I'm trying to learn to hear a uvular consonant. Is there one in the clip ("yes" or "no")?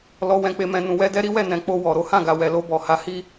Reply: no